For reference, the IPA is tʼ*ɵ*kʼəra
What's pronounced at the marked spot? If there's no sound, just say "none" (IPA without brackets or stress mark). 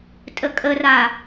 ə